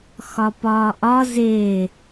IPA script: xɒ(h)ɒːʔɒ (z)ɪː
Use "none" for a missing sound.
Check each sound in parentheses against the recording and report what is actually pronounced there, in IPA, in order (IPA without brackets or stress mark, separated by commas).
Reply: p, z